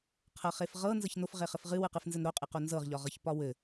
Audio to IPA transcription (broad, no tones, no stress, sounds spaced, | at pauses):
qʰ ɤ χ e f ʁ ɤ n z ɤ ç n o f ʁ e χ ɘ f ʁ ɨ w ɨ q ɨ f n z ɘ n ɾ o qʼ ɨ q o n z ɤ ʁ ʎ ɒ ʁ ɤ ç p ɒ w ɘ